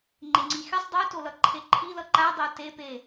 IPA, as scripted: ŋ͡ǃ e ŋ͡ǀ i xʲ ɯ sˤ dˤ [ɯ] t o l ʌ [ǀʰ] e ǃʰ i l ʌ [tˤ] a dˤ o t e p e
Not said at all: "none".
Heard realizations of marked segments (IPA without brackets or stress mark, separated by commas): ɯ, ǃʰ, ǃ